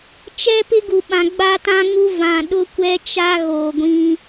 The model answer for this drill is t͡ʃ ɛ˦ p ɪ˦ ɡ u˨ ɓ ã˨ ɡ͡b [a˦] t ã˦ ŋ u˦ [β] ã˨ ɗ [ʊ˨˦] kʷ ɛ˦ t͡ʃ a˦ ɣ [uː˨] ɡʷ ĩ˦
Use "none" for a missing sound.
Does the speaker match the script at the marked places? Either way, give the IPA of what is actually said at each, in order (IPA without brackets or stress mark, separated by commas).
a˦, v, ʊ˦, oː˨